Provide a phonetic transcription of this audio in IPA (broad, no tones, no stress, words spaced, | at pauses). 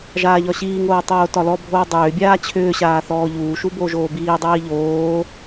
ʒaːʎɒɕiːŋoː tˤoːtɒlɔbʱoː dˤʏːbʲaː t͡ɕʰʏːɕaː θɔːʎuːʃu boʒoːbiːdˤiː ʎoː